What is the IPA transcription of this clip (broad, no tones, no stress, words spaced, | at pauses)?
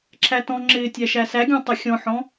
ǁʰætɔ̃ŋ͡ǁɪː tʲæʃæsæɡʲɔ̃ tˤɪxʲɔ̃ħɔ̃